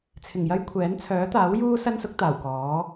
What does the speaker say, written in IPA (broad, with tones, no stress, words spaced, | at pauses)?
t͡sʰɪ˨˩ŋjɐ˥jkʷʰɛː˨˥n t͡sʰœː˨˥t̪aː˨˥wjuː˥ sɐ˥nsʊ˨˥k̚t̪aː˨˩w kɔː˨˥